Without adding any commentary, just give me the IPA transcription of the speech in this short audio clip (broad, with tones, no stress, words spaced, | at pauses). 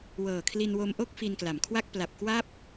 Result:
wɤː˨˩kʰli˧nwo˧mʔo˥˩k̚ fi˧nkla˩˦mkʰwa˥˩k̚ pla˨˩p̚kwa˥˩p̚